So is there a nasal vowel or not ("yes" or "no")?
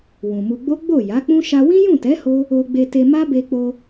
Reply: yes